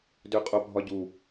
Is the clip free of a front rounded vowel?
no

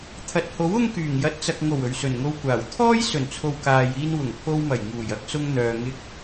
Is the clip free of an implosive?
yes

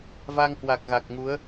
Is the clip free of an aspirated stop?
yes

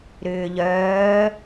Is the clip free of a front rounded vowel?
no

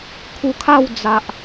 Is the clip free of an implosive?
yes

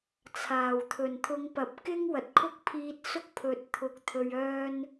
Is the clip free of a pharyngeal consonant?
yes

